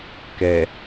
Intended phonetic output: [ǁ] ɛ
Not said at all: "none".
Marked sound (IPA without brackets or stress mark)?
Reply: k